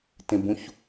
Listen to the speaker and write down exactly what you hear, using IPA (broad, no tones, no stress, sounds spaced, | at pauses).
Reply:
t ẽ b ũ ç